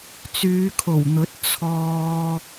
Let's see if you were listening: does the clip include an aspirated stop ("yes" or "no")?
yes